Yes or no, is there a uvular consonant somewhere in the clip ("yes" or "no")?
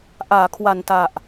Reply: no